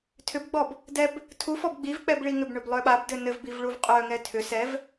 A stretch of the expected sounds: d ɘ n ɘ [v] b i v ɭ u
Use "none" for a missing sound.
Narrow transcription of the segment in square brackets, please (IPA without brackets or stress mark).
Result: v